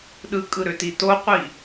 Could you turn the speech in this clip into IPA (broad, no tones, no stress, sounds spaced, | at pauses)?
ɗ ɯ kʼ ɯ ɾ ø t i t o qʷ i